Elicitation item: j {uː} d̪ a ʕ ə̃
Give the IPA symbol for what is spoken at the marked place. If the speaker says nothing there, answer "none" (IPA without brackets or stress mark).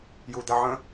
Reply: u